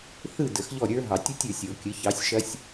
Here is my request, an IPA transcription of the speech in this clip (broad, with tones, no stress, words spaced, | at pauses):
θɯ˥˨ də˨˩˦xʎɔ˥˨ɾʲə˞˦˥ ɦɑ˨˩˦tʲu˦˥tʲə˞˨˩˦sʲ o˨˩˦kʲə˨˥ çɑ˨˥sʲʃɐ˦˥sʲ